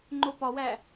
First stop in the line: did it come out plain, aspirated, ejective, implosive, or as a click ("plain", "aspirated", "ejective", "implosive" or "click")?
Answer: click